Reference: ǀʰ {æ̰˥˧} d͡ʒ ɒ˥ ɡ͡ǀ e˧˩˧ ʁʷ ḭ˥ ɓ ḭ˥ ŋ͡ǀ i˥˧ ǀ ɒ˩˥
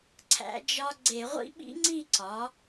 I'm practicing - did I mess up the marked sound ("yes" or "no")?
yes